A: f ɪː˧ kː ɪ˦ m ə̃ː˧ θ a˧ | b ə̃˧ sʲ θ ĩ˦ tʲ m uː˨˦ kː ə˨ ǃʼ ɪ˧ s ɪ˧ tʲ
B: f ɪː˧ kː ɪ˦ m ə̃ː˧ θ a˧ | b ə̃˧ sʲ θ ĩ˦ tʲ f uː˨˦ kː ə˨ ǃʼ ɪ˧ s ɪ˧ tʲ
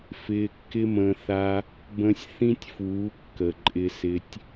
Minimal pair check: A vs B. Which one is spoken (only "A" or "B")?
B